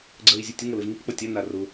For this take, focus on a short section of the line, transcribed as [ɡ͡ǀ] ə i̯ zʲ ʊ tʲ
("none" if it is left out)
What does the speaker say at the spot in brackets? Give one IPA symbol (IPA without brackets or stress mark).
ɡ͡ǀ